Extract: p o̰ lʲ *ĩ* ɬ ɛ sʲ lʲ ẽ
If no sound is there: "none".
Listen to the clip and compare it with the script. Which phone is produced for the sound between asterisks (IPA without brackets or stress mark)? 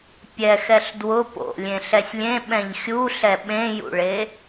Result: ẽ